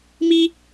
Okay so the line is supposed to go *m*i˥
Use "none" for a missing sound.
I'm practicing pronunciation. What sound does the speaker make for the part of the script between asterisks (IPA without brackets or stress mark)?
m